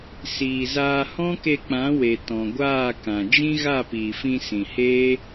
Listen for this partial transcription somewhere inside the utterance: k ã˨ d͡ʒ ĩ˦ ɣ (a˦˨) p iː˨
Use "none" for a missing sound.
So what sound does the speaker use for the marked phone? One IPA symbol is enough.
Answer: a˦˨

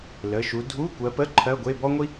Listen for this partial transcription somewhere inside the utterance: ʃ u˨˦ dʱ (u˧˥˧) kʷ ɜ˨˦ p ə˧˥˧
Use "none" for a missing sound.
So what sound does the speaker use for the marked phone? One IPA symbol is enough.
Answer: u˧˥˧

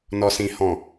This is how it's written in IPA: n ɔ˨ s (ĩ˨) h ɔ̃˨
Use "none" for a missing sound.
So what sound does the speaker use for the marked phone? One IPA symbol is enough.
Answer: ĩ˨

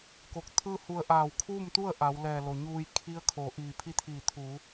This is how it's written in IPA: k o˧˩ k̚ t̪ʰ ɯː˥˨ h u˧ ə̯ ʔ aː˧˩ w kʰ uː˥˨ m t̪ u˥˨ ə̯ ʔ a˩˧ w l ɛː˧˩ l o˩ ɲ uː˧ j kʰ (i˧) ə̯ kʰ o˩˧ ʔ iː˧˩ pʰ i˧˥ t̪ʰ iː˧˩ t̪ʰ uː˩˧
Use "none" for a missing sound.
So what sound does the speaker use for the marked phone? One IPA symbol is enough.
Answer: i˧˥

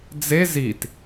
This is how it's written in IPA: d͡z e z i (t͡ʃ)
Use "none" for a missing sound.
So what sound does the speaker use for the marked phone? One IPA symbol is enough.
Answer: t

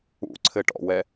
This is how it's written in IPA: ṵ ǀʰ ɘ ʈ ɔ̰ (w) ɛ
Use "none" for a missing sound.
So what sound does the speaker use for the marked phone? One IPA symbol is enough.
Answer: w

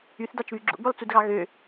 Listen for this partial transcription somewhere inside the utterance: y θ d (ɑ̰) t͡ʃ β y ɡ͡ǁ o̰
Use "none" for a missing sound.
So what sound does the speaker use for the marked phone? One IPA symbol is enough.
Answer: ɑ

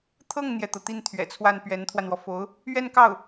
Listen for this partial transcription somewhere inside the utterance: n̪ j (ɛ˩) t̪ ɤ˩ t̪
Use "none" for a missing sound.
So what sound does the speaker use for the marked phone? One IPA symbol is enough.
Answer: ɛ˩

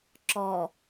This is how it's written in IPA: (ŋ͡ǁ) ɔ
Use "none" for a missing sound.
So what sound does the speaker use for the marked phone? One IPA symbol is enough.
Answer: ǁ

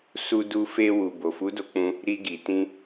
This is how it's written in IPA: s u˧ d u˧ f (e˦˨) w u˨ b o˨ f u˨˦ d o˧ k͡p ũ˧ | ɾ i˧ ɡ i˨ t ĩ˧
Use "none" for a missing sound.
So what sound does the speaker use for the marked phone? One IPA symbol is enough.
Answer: e˧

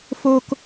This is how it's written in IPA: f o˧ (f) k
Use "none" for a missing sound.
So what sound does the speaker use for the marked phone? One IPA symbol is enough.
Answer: none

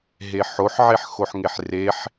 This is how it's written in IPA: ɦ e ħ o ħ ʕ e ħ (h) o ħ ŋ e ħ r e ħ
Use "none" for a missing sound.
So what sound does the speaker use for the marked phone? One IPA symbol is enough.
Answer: x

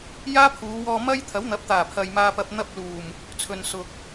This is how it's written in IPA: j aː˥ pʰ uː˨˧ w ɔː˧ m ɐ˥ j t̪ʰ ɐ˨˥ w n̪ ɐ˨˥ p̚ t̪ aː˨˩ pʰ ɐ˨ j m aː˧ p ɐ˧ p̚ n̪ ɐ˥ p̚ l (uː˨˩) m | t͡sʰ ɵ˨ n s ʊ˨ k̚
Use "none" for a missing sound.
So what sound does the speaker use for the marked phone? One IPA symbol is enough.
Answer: uː˨˩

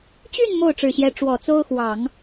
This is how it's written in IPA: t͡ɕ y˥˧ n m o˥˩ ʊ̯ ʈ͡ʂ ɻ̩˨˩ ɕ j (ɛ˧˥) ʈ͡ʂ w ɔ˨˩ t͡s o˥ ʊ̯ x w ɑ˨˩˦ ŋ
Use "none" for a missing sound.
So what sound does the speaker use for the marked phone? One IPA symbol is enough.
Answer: ɛ˧˥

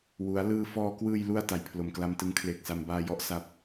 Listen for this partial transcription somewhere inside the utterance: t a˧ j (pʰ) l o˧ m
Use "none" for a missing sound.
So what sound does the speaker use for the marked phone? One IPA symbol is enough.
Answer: pʰ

